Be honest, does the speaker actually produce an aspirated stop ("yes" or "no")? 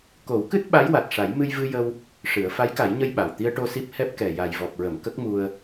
no